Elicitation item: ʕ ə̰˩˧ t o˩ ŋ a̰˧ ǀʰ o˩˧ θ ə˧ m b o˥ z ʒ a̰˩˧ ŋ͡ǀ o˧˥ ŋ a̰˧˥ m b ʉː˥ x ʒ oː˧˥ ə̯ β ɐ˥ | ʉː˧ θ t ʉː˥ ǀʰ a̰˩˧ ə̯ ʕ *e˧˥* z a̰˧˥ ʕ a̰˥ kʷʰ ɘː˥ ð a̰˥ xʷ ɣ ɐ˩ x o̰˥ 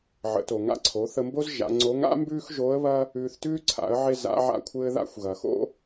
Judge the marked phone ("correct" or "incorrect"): incorrect